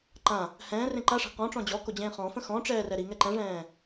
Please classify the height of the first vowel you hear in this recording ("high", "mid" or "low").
low